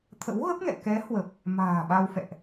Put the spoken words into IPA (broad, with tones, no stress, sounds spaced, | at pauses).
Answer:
t̪ʰ ə̰˧˥ w ɣ ə˦˥ p̚ ŋ ɛ̰˧˨ k ɛ˨˦ h w ə˨˩ p̚ | m a̤ː˨˩ ɓ a˧ w f ɛ̰˧˨ ʔ